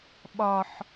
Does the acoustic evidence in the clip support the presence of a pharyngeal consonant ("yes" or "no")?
yes